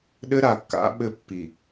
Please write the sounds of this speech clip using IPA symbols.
ɗɘ˦ɾa˨kːa̰˨˦ ɓɘ˦ pːi˨

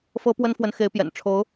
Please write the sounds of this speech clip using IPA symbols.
fɤ˥pwə˥nfwə˧˥n xe˧˥ɪ̯pjɛ̰˨˩n ʈ͡ʂʰo˧˥ʊ̯

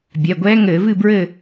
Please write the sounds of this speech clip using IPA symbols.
bʲɛ˩˧˩ɡʷɛː˧˥ŋɘː˧˩˧vɨ˥˨ bɹɘ˥˨

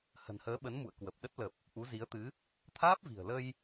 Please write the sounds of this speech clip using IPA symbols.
hə̤˨˩nhəː˨˦ɓə˨˦nmṵ˧˨ə̯ kwə˨˩p̚ɗə˦˥t̚lə˨˩p̚ | ʔu˨˦zi˨˦ə̯t̪ɨ˨˦ | t̪ʰaː˦˥p̚vi̤˨˩ə̯ lə˧j

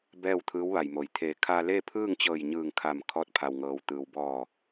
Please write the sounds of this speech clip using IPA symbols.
bɛː˥˨wt̪ʰɯː˧˥wʋa˩jmo˩j t̪ʰe˩˧ kʰaː˧leː˥˨pʰɯː˥˨ŋt͡ɕɤː˧˩j ɲɯː˧˩ŋkʰa˧˩m kʰɔː˧˥t̚ pʰa˩wŋɤː˩wt̪ɯː˩w bɔː˧˩

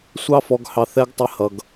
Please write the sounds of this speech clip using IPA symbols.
sʷɑ˦fɔ˧ɡ hɑ˧θɛ˦ɡ tˤɪ˧hʌ˨ɡ

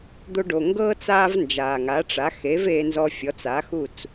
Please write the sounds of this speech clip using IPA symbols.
d̪o˧ɖo˩ ŋɡɤː˥ t͡saː˥vnd͡ʒaː˩ŋa˩˥ ʈ͡ʂa˩˥ xe˩˥veː˧nzɔ˧fʲɔ˩˥t͡s a˩˥ xu˥˩t͡s

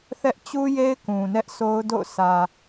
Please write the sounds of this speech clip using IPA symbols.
θɛ˦ʔ t͡ɕu˦je˦ɪ̯ kũ˨nɛ˦ʔso˦ʊ̯ do̰˦˨ʊ̯sä˨

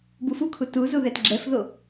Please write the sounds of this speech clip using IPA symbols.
bufukʰu tu zuðɛtɡ͡ǁɛfðo

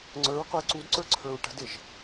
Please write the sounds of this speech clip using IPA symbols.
ŋ͡ǀə˞ɹqʊə̯ ǀudǀə˞ ǀʰə˞ɹʈə̤dɪʒ

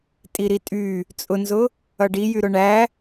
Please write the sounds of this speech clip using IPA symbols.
tʼiɾitʼy | t͡sʼʊnzʊ | ʌɖijy ɾʊɳæ

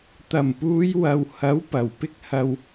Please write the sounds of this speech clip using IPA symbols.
t̪ɐ˨˩mpuː˨˧j wɐ˨˧w hɐ˨˥w pɐ˨˩wpɪ˥k̚hɐ˧w

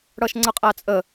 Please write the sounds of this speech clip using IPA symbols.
ɽʌʃŋ͡ǀəqʼæt͡sʼə

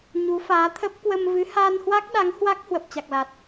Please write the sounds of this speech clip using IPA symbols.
ɲu˨˦faː˨˦t̪ʰə˦˥p̚ kwə˧mvɨ˨˦ haː˧nhwa˦˥k̚ɗa˨˦ŋ hwa˦˥k̚ hwə˨˩p̚t͡ɕa˨˩k̚la˨˩t̚

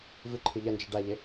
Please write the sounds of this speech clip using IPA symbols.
vɨǃʰɨ ʎɐnd͡ʒi ɖaʎe

